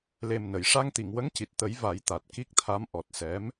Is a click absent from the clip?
yes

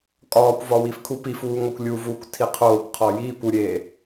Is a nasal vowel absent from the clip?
yes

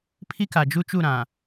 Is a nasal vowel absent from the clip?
no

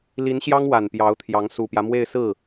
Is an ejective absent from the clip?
yes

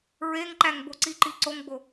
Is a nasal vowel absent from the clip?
yes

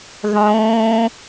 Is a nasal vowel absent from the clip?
no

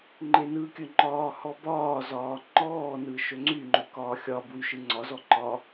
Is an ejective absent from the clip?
yes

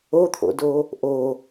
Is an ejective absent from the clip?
yes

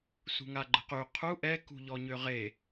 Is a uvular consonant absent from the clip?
no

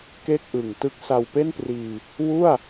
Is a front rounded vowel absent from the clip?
yes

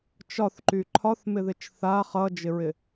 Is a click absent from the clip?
no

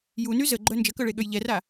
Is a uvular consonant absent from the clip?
yes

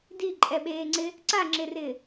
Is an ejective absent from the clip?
no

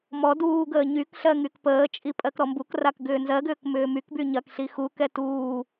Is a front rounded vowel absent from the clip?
no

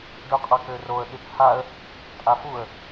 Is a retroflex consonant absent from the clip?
no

